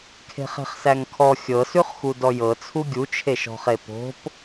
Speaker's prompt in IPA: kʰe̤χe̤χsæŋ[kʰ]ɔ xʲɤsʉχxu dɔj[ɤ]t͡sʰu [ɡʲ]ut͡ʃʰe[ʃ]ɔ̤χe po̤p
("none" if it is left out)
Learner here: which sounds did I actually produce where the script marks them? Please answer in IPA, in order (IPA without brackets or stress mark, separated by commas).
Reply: kʰ, ɤ, ɡʲ, ʃ